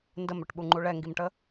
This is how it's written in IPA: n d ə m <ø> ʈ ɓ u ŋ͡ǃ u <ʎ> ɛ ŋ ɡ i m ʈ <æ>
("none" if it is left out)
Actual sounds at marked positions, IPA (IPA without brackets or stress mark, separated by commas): ø, ɭ, ə